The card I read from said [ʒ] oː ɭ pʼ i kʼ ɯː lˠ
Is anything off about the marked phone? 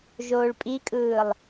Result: no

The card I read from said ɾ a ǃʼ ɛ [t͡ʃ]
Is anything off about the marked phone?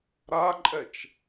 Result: no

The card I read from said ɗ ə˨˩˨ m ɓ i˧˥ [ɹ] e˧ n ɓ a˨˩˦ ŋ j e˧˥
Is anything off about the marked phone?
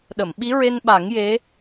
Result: no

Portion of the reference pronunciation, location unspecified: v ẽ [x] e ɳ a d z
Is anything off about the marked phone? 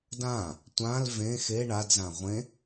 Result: no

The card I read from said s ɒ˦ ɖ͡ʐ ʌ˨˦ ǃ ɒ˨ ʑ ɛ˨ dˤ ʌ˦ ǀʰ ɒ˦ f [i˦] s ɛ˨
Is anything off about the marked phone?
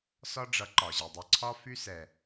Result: yes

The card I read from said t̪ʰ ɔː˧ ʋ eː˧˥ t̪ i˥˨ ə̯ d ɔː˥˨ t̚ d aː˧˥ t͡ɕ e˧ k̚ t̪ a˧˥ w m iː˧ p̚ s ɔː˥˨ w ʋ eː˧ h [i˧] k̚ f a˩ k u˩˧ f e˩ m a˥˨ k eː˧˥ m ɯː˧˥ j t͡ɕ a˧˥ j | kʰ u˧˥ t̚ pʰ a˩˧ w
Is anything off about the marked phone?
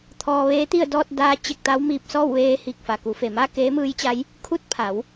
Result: yes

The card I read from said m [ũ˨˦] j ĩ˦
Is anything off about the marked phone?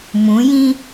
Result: no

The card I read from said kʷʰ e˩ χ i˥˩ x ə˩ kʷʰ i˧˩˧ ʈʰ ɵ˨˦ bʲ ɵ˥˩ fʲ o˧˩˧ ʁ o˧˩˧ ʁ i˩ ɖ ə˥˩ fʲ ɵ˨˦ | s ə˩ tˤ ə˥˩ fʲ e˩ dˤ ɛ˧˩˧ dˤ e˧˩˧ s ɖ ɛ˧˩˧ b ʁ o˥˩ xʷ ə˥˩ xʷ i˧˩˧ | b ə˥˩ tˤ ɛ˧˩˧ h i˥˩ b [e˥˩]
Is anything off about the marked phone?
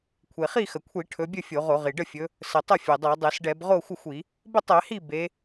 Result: yes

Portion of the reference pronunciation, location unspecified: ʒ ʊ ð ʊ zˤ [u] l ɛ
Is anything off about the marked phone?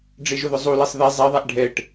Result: no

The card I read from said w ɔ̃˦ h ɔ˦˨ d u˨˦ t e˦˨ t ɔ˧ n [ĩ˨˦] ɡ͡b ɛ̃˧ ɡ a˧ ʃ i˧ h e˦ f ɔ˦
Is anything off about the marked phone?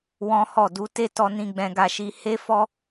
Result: yes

